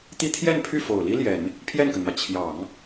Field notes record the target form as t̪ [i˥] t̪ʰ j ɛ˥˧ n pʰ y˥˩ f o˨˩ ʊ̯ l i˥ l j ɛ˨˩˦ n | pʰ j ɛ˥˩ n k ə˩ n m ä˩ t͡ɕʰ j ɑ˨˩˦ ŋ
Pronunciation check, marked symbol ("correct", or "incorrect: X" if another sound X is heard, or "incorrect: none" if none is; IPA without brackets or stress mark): correct